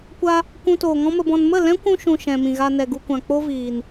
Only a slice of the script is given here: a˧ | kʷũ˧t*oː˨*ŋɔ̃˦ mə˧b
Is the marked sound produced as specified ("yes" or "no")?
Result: yes